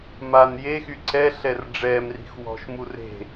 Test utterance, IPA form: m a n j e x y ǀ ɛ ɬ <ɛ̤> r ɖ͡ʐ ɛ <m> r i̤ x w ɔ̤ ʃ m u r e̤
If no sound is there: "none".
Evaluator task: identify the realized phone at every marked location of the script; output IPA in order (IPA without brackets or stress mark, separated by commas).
ɛ, m